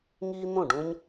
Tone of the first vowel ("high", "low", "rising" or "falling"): high